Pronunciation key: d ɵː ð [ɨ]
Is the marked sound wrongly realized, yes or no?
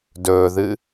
no